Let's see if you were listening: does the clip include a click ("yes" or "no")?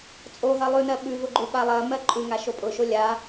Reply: yes